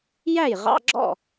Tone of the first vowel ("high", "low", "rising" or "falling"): falling